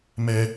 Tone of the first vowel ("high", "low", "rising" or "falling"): low